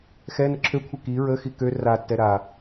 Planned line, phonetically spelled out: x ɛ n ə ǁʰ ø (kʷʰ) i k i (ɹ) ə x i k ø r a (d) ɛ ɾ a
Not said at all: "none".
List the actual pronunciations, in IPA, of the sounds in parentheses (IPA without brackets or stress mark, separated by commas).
kʷʰ, ɹ, tː